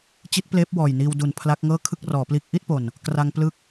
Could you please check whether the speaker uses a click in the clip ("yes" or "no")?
no